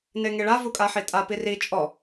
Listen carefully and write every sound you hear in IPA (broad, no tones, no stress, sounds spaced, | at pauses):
n e ŋ e ɭ a v u kʼ a ħ i tʼ a p i r i t͡ʃʼ ɔ